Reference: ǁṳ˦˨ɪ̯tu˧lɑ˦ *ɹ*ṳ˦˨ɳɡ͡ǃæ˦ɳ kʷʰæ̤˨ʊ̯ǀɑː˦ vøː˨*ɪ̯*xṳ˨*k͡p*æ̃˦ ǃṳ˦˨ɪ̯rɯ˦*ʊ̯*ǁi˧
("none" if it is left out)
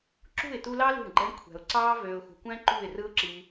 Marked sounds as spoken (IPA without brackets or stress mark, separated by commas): l, ʊ̯, kʷ, ʊ̯